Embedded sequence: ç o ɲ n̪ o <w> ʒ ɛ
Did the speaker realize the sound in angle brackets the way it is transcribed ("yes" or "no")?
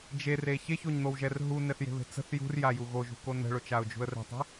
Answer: yes